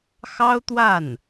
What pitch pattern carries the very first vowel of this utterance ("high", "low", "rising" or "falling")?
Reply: high